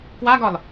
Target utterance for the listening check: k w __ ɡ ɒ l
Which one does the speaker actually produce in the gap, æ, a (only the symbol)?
a